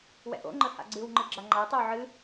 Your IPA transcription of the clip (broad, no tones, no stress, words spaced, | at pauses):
wɛ̰ʔo̰ŋ͡ǃə ha̰ɡ͡ǀɨwŋ͡ǃɨ ɡ͡ǁaŋ͡ǃatˤɛw ʕɨ